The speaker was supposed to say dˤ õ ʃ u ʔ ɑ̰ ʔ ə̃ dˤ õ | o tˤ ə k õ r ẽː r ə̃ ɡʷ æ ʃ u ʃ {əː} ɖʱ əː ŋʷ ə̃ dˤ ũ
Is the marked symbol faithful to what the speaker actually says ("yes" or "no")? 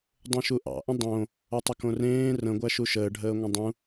yes